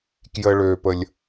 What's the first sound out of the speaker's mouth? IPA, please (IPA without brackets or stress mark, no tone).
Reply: k